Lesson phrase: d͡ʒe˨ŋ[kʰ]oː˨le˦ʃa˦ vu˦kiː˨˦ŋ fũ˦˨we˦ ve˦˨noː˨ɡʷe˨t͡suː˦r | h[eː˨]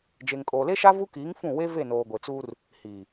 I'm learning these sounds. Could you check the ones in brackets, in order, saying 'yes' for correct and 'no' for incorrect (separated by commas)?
no, no